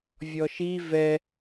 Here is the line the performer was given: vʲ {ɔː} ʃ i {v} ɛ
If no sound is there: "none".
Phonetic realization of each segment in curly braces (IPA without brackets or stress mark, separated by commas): ɔ, v